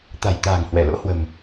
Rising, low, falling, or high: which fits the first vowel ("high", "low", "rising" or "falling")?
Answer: low